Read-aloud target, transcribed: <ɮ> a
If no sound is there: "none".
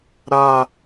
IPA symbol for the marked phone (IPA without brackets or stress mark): ɾ